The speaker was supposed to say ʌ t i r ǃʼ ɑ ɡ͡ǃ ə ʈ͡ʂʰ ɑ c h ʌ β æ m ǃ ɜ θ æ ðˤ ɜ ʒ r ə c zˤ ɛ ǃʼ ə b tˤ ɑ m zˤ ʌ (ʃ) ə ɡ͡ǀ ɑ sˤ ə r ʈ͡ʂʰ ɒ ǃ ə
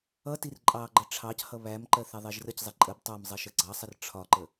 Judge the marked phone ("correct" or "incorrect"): correct